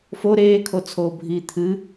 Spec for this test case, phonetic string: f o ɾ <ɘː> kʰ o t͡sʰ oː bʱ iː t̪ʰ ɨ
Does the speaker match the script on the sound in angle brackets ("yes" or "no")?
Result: no